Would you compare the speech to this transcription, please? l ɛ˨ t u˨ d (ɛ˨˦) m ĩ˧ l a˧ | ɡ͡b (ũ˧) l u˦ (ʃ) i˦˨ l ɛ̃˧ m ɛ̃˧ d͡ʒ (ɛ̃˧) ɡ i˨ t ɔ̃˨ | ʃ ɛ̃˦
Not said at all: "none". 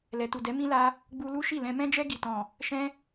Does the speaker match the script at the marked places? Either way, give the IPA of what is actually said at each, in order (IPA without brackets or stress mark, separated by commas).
ɛ˨˦, u˧, ʃ, ɛ˧